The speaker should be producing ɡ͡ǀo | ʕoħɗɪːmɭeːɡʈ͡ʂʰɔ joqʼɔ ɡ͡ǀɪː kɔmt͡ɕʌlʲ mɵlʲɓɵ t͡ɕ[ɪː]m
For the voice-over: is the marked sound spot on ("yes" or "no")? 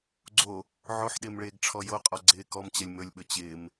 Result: yes